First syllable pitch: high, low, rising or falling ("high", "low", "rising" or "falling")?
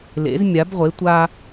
rising